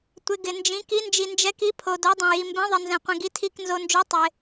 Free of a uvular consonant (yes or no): no